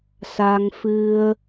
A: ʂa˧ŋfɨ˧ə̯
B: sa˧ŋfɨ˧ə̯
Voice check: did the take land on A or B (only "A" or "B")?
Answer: B